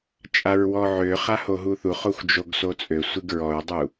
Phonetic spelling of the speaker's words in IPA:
t͡ʃʼ a ɹ w ɔ ʕ ø χ a h o ɦ u θ u χ o xʷ d͡ʒ o ɡ s o t͡sʼ ø sʷ i ɡ ɹ ɔ ɹ dˤ u

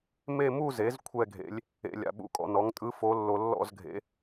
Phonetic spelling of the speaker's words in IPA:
m e˥˧ m u˥˧ z e˩˥ z kʷʰ ɛ˥˧ ɡʱ ḛ˧˥ lʲ | ḛ˧˥˧ lʲ a̰˧ ɓ ṵ˧˥˧ kʼ ɔ̰˧ n ɔ˩˥ ŋ tʼ ɯ˧˥ f o˧˥ lː o˧ lː ɔ̰˥˧ z ɡʱ ḛ˧˥

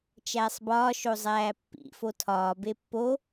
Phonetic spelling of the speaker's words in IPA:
t͡ʃ æː sˤ b ɒː ʃ o zˤ æː pː ḭ f o tʰ ɒː b e pː o

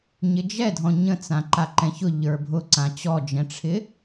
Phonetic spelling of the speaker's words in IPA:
ɲ ɪ d͡ʒ ɛ dʱ ɔ̃ ɲ ə̃ t͡s ã ǃ a ǃ ɛ̃ ç ʊ ʎ ə˞ bʱ ʊ ǀ ã t͡ɕ ɔ d͡ʒ ɛ̃ ʈ͡ʂʰ ɪ

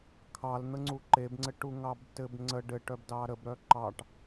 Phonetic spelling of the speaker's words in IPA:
kʰ ɑ l n̪ ə ŋ͡ǀ u ǃ e b ŋ͡ǀ ɘ ʈ u ŋ ɑ b t ɘ b ŋ͡ǀ ə ɖ ɘ ʈ œ b d ɑ ɾ ə b ɾ œ ǃ ɑ ʈ

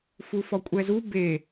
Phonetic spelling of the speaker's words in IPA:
f u f ɔ kʷʼ ɛ z u b e

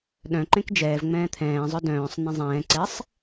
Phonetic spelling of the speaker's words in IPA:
ɗ œ̃ ǃ ẽ k d͡ʒ ɛː v ŋ͡m ɛ̃ː t̪ʰ ɛ̃ː zˤ œ d œ̃ː sˤ n̪ ẽ zˤ ɛ̃ː ǀ ɛ sˤ

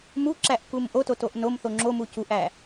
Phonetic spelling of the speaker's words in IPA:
m u ǁ æ ʔ k u m ʔ o t o t o ʔ n o m θ o ŋ͡ǁ o m u c u ʔ æ

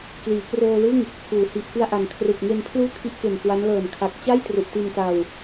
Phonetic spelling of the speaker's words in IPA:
k l iː˩˦ k r oː˧ l ɯ˥˩ ŋ | kʰ uː˩˦ h i˨˩ ʔ k ɯ˧ a̯ ʔ a˨˩ n kʰ r ɯ˨˩ k̚ ŋ e˧ n pʰ l uː˥˩ kʰ i˦˥ ʔ k e˨˩ n k w a˦˥ n l ɤː˨˩ n kʰ a˨˩ k̚ t͡ɕ a˥˩ j t r u˨˩ ʔ t i˧ n t a˧ w

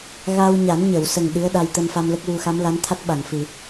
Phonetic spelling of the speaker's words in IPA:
ɣ a˧ w ɲ a˨˩˦ n ɲ ə˨˩˨ w s ə˨˩ ŋ ɗ ɨ˧˥ ə̯ ɗ a˧ j t̪ ə˧ m f a˧ m l ə˦˥ k̚ w u˧ x a˧˥ m l a˧˥ n t̪ʰ a˦˥ t̚ ɓ a˨˩˨ ŋ f ɨ˨˩˨

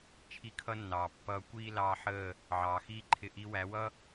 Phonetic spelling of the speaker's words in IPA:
t͡ʃʰ i˦ kʰ ʌ˦ nː ɑː˨ pː ʌː˧ kʷ iː˦ l ɑː˧ ħ əː˦˨ | ʕ ɑː˨ x iː˦ ǃʰ ɪ˧ ʔ i˧ w æ˨˦ w ʌ˦

